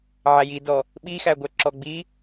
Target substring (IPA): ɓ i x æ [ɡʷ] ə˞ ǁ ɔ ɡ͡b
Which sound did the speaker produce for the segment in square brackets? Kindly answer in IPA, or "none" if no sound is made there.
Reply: ɡʷ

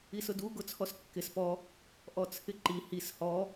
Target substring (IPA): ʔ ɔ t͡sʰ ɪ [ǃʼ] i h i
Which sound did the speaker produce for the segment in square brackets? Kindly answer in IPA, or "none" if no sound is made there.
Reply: ǃ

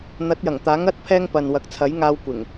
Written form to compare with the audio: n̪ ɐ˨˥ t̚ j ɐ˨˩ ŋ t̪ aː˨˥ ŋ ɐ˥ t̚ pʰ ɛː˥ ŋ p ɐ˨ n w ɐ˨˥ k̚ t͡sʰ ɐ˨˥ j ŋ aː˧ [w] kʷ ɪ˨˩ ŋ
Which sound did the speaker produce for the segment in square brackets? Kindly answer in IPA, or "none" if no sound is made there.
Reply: w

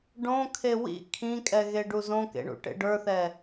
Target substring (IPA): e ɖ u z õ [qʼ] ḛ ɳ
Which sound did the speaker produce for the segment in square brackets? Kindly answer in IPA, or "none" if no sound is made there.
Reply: k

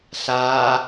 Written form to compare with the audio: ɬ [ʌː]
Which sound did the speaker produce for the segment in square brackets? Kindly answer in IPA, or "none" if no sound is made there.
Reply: aː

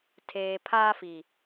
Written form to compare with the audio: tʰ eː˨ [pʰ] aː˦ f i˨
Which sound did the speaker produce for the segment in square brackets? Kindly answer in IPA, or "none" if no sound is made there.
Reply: pʰ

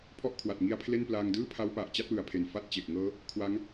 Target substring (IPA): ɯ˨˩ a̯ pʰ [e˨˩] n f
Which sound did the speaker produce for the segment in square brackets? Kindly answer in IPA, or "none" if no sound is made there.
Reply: e˨˩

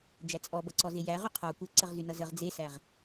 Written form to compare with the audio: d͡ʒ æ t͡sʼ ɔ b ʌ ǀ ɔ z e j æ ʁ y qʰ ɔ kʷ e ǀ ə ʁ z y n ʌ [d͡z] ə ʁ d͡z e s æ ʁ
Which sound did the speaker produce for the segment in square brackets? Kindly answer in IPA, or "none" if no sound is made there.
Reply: z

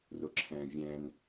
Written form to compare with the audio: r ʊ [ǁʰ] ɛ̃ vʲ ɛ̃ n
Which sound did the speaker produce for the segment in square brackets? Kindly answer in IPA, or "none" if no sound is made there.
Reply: ǁʰ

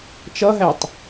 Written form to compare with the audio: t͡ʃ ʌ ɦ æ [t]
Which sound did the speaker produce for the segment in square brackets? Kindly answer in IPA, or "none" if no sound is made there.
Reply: tˤ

